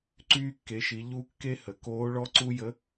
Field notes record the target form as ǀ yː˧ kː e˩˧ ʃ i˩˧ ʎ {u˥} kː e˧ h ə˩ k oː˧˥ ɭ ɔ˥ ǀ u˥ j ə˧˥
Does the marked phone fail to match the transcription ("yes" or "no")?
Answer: yes